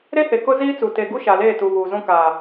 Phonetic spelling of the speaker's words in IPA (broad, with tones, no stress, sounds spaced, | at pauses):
ɾ e˦ h e˨ k ʊ˦ z iː˦ t͡s u˨ t e˨ ɡ u˦ ʃ a˨ l eː˦˨ t u˨ β uː˨ z ũ˦ k aː˨